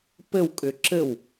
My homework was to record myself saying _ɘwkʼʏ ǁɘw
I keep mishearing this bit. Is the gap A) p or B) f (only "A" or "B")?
A